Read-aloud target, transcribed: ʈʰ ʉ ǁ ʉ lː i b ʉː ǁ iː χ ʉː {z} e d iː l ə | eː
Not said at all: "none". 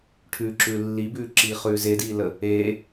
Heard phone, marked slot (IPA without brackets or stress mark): z